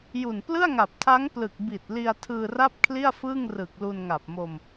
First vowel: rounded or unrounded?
rounded